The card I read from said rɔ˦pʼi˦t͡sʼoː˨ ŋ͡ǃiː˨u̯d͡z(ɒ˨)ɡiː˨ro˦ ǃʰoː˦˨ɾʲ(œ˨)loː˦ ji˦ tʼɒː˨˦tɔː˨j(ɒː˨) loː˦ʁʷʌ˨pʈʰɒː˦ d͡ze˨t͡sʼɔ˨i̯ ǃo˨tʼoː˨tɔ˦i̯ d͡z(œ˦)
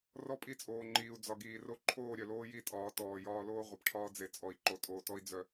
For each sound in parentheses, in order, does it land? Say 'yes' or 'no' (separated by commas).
yes, yes, no, yes